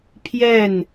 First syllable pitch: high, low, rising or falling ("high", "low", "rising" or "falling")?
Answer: falling